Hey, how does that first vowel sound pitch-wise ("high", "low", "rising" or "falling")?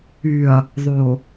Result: low